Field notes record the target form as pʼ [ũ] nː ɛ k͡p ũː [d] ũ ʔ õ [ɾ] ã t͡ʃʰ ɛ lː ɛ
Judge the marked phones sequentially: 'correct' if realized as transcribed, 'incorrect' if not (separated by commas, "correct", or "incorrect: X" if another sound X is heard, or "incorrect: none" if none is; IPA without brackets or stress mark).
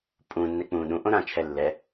correct, incorrect: ɗ, correct